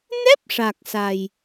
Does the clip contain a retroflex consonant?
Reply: yes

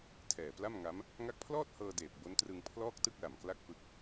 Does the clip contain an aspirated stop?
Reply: yes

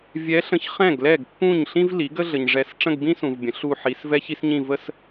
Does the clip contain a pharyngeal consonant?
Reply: yes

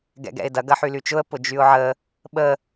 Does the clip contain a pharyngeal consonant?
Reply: yes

